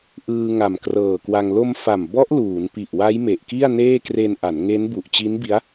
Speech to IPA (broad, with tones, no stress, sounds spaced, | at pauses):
ʔ ɯː˧ ŋ a˨˩ m k r ɤː˨˩ k w a˧ ŋ l o˧ m f a˨˩ m b ɔ˦˥ ʔ l uː˩˦ n p i˨˩ ʔ w a˦˥ j m e˨˩ ʔ k i˥˩ a̯ n eː˥˩ k r e˧ n ʔ a˩˦ n ŋ e˦˥ n b u˨˩ ʔ t͡ɕ i˦˥ n b i˦˥ a̯